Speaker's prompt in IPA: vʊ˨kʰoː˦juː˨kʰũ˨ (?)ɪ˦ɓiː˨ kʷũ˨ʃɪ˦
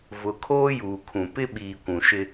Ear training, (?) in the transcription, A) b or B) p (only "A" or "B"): B